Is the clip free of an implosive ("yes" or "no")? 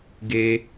yes